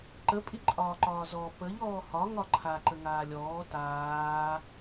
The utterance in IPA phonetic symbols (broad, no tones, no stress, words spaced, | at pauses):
ǃə pʼiǃʼɒːǃɒːzɔ pəʎ ɔːhɒ ŋɒǃʰa ǃəŋaːlʲɔː taː